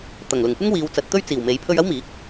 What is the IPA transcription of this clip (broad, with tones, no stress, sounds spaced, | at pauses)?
t̪ ɐ˨˩ ŋ l ʊ˨˩ ŋ kʷ ɐ˥ ŋ w iː˨˧ w t͡s ɐ˨˥ t̚ t̪ ɵ˥ ɥ t͡s iː˨˩ w m e˨˥ j pʰ ɵ˧ ɥ ɐ˥ w m iː˨˥ k̚